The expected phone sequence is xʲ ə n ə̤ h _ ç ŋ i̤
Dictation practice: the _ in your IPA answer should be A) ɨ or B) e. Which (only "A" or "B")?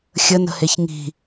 B